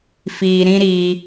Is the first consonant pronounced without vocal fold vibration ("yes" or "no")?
yes